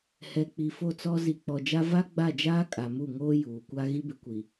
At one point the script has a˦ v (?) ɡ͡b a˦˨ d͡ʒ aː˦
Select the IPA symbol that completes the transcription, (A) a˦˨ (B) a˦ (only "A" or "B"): B